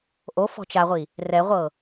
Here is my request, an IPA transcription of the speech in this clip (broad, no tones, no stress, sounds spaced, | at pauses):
ʔ o f ɔ̤ t͡ʃ a ʁʷ i | r ɛ ʁʷ ɤ